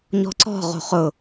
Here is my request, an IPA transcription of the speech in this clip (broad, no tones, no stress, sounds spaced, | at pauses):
ɲ ɔ̤ ǀ ɔ̤ ʁ o̤ χ ʊ